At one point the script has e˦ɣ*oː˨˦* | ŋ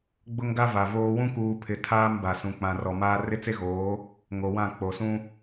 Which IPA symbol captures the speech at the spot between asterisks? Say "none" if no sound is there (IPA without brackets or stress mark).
oː˨˦